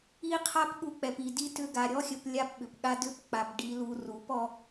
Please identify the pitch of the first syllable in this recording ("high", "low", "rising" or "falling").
high